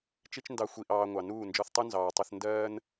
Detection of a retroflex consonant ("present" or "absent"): absent